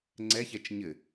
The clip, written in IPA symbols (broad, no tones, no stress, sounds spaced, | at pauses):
ŋ͡ǀ ɛ ç ɛ t͡ʃ ɲ ɘ